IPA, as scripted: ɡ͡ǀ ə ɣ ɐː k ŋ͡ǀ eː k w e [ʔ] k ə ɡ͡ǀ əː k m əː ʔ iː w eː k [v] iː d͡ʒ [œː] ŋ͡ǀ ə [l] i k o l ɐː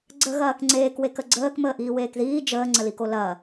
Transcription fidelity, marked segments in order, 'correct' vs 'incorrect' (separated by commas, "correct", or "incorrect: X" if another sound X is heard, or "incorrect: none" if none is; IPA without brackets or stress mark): incorrect: none, incorrect: ð, incorrect: əː, correct